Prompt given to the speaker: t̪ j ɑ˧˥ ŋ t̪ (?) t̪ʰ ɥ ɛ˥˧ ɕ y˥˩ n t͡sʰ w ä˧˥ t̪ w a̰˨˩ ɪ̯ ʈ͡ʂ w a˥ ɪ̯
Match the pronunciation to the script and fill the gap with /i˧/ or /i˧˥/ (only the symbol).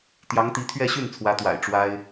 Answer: i˧˥